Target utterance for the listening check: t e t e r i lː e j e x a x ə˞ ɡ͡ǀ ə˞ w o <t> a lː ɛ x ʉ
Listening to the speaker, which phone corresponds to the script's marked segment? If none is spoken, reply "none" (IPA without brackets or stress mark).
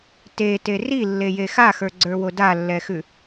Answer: d